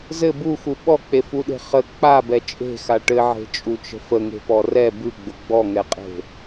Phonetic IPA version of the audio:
z ɘ b u x u ɓ ɔ k͡p e f u ɗ e̤ χ ə k͡p a b ɛ t͡ʃʼ e̤ x a ʈ ɘ ʕ e̤ t͡ʃʼ u t͡ʃ ə̤ f ə ŋ e̤ p ɔ r ɛ b ʉ ɡ͡b ʊ ɡ͡b ɔ ŋ ɛ qʼ e̤

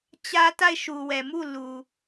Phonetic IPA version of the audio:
t͡ɕ ä˦ t a˦˨ ɪ̯ ʃ u˨ w ɛ˨ m u˦˨ l u˨

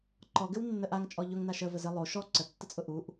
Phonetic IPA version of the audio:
ǃ ɔ ɡ ɘ w nː ə ʔ a ŋ t͡ʃʼ ɔ ʎ ʊ ŋ n a ʃ ə v ə z ɘ lˠ o ʃ ɔ ǀ ə tː ə t͡sʼ ʊ ʔ u ʔ

